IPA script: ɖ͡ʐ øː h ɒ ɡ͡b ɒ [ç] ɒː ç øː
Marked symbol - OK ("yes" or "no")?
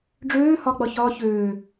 yes